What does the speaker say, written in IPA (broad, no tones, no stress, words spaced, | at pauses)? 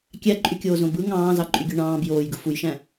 kʲæǃʼykʲoːzõ bɯ ŋɑ̃ːzɑǃʼyɡʲø ɳɑ̃ːb joːjɡɯ fujʃæ̃